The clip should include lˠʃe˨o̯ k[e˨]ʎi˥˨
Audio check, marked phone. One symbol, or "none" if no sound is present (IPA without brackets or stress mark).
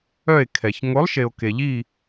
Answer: e˨